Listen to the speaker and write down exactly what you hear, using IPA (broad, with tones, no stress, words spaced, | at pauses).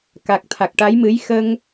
ka˨˩k̚t̪ʰa˨˩k̚ʈa˧˥jmɨ˧˥j xə˧ŋ